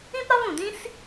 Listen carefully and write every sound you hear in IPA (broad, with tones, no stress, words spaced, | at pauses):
ĩ˥pɾɒ˥vũ˩dĩ˥s